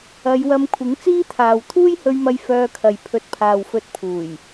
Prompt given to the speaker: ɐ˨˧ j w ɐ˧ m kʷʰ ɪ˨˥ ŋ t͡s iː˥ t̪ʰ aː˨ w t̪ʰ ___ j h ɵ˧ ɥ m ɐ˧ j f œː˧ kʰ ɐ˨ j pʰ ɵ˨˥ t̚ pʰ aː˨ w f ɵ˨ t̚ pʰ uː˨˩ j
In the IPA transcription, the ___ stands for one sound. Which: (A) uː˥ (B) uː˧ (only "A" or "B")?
A